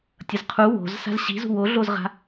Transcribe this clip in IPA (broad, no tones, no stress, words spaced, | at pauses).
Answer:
tʲʌzqʰu wo̤zsa̤z ɕi̤zṳ woɮozʁa̤